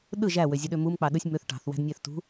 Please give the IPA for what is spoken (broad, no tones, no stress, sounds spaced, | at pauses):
ɗ ɯ ʒ æ w ø zʲ ɯ ɗ ø m u m k͡p ɑ ɗ ɯ sʲ m ø θ ʈ ɑ̤ θ w æ̤ d nʲ æ θ t ṳ